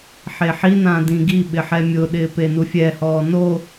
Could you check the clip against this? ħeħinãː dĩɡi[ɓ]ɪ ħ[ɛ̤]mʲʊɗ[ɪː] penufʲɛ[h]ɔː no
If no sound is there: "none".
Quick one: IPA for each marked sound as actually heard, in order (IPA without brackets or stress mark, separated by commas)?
ɓ, ɛ, ɪː, h